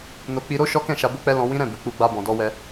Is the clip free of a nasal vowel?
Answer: no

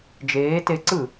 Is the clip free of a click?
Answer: no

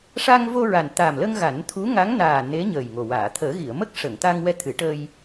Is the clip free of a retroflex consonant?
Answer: no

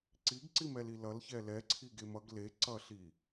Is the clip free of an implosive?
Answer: yes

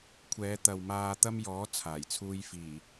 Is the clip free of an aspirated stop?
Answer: no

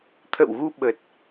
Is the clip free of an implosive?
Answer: no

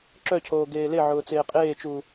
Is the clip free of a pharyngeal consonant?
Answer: no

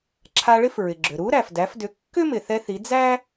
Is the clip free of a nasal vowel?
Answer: yes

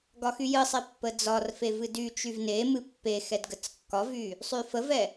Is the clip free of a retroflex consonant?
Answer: yes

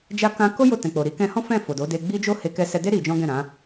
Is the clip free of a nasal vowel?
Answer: no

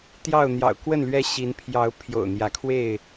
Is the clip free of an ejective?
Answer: yes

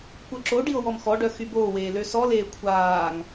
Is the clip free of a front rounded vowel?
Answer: no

